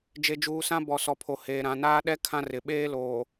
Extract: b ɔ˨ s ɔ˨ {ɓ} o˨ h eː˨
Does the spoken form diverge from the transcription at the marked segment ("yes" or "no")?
yes